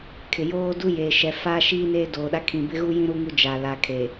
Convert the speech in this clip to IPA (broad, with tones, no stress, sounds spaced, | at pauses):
kʰ ɪ˨ j oː˦ d u˦ j eː˨ ʃ ɛ˨ f aː˦ ʃ iː˦ n eː˦ d oː˨ ɗ a˦ kʰ ĩ˨ b ɪ˦ ɣ u˦ j ĩ˦ ɾ u˦ ŋ u˦ d͡ʒ a˨ l a˨ kʰ e˨